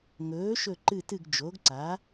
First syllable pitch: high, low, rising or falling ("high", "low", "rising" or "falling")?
rising